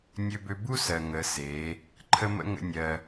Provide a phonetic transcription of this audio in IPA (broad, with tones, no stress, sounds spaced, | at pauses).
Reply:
nʲ ø˧ b ø˧ b u˦ s ɜ˨ ŋ ə˨˦ s e˨˦ | ǃʰ ə˦ m ə̰˦ ŋ ə̰˦ nʲ ɜ˧